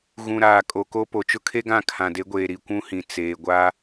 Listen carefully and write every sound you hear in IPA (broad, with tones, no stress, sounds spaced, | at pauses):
ɣ ũ˨ ɾ aː˨ kʼ o˨ k o˦ p o˨ t͡ʃ ʊ˦ kʰ e˦ ɡ ã˦˨ kʰ ã˨ d e˨˦ ɡʷ eː˨ ɾ i˨ kʷ ũ˦ h ĩ˨ t͡s eː˨ ɡʷ a˦